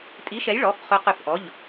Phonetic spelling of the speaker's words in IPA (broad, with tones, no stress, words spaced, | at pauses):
tʼi˨˥ʃɛ˨˥jɭɔ˩˧˩f χø˨˥qʏ˧˩f ʔɔ˩˧˩ʎ